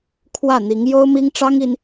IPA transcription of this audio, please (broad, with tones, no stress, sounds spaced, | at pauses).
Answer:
kʰ w ä˥˩ n̪ i˧˥ ŋ j o˥ ʊ̯ m i˥ ŋ ʈ͡ʂ ɑ˥ ŋ i˥ n